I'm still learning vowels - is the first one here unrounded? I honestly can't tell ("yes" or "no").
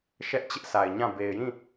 yes